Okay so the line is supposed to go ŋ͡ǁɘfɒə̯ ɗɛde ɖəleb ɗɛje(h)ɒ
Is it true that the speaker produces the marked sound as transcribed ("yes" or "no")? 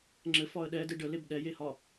yes